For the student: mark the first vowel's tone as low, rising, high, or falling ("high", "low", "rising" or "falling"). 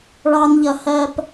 high